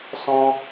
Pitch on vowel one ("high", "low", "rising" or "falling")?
high